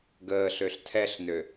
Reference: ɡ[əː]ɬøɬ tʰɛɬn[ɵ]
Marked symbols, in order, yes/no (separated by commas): yes, no